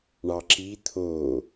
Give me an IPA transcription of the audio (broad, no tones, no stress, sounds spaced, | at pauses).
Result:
ɳ ɑ ǁ i t̪ʰ o